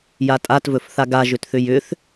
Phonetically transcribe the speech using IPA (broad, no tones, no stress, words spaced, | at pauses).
jatʼatvɵfθa ɡaʒʏtθʏ jʏθ